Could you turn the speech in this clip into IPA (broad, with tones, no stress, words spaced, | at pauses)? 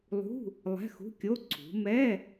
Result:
lˠṳ˧˥˧ | lˠɛ̤˧˥˧xṳ˧˥˧kʲo˧˥˧ ǀʰṳ˩˧mɛ˧˥˧